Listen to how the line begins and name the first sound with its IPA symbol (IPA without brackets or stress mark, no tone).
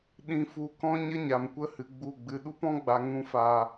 ɗ